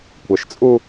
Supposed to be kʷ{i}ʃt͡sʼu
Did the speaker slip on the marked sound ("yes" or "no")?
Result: yes